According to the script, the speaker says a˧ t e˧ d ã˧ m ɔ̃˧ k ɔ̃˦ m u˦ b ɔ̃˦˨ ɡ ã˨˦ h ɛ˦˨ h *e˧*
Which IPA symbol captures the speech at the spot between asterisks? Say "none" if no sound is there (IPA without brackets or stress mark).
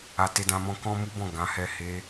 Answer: e˧